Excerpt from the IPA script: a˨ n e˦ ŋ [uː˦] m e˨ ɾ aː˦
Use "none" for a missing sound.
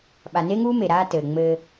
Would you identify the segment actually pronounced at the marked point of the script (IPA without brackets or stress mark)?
uː˦